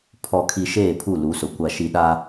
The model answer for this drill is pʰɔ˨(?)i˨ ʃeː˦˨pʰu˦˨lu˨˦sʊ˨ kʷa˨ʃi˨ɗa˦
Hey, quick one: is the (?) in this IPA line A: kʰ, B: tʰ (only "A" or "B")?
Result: A